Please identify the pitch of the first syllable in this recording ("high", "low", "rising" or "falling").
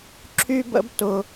high